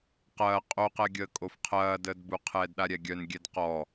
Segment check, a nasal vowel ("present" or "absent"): absent